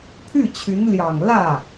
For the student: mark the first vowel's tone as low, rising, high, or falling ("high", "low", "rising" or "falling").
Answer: falling